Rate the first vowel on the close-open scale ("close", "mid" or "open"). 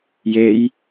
mid